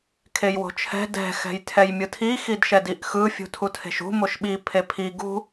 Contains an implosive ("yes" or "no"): yes